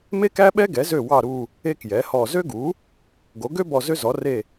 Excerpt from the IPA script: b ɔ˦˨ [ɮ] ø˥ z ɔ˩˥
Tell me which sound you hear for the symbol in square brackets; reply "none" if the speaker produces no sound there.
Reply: z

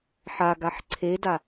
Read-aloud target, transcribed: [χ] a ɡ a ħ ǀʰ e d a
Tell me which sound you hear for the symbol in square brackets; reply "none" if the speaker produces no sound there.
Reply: ħ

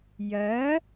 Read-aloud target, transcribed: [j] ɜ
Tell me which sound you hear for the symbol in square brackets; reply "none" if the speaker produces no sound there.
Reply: j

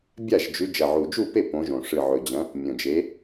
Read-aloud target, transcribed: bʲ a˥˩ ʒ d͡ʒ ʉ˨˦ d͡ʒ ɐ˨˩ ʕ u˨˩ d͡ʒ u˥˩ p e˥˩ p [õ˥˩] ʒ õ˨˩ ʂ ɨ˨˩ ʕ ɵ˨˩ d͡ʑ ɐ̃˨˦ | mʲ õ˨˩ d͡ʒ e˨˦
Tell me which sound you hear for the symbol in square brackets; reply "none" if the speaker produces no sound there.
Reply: õ˨˦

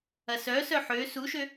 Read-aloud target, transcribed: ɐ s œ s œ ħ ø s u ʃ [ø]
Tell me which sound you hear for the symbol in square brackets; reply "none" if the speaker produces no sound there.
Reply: ø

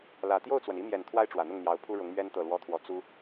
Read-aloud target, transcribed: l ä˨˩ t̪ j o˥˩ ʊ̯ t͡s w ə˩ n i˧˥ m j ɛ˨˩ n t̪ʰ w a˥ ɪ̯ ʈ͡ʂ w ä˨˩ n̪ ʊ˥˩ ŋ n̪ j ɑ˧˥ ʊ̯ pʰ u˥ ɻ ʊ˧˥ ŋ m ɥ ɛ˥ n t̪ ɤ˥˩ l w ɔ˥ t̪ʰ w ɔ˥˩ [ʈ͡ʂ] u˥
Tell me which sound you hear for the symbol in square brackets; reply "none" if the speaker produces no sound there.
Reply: t͡s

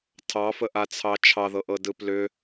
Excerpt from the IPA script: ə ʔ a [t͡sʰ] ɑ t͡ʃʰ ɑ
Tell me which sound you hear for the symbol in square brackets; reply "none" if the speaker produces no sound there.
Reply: t͡sʰ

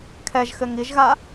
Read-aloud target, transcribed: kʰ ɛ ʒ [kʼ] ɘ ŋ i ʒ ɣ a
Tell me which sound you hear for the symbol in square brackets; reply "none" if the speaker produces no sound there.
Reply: x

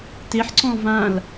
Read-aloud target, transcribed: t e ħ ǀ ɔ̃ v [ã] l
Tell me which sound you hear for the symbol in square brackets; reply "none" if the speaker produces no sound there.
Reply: ã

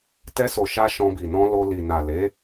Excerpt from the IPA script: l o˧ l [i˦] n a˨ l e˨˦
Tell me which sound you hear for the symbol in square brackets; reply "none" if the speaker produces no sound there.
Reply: i˨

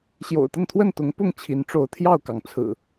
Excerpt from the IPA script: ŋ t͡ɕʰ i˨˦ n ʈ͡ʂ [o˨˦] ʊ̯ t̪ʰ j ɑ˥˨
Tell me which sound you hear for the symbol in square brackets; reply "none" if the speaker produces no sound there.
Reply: o˨˦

